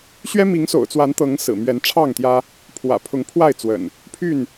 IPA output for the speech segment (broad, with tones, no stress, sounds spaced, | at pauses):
ɕ ɥ ɛ˦ m i˨˦ ŋ s o̰˨˩ ʊ̯ t͡s w a˨˦ n t̪ ɤ˨˦ ŋ s ɹ̩˨˩ m ɥ ɛ˨˦ n ʈ͡ʂʰ ɑ˥˨ ŋ t̪ j ä˦ | pʰ w ä̰˨˩ pʰ ʊ˨˦ ŋ pʰ w a˥˨ ɪ̯ t͡s w ə̰˨˩ n | pʰ y˥˨ n